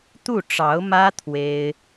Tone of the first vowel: falling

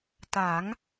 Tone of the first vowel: rising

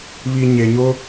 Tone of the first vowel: low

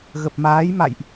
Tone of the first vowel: low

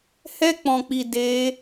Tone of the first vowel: high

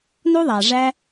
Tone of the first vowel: high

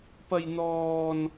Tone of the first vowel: high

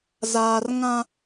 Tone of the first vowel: high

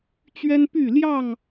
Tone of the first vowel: high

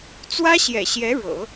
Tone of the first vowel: high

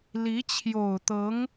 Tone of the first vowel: rising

